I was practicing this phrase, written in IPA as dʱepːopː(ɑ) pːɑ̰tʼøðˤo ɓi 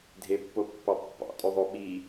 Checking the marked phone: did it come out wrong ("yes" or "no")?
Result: no